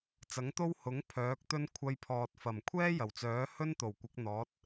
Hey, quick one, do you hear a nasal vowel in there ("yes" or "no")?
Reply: no